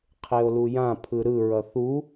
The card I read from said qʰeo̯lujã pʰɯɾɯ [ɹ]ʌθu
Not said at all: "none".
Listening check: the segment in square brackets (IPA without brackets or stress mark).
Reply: ɹ